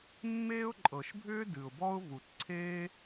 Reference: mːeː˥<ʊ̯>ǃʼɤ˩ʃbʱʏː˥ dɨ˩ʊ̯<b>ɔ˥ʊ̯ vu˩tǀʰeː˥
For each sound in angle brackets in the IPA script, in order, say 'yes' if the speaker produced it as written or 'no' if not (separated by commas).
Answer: yes, yes